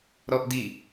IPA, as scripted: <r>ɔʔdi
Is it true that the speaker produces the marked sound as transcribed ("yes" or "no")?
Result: no